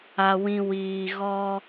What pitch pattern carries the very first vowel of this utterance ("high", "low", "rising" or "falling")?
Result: low